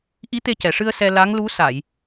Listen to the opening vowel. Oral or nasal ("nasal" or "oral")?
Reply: oral